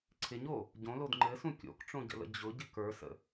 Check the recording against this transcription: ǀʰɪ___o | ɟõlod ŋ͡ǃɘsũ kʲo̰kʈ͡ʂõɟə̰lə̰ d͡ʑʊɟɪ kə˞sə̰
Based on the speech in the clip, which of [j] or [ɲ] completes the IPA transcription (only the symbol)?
ɲ